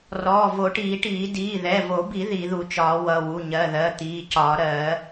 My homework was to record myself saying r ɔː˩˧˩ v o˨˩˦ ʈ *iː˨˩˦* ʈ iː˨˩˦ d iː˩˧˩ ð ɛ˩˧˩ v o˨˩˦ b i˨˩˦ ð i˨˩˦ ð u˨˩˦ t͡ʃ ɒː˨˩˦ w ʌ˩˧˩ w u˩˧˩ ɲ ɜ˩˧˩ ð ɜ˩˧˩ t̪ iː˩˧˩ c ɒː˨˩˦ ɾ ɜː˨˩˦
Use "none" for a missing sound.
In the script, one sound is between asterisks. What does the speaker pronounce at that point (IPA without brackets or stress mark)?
iː˨˩˦